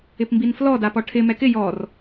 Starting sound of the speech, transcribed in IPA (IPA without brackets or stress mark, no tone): ɪ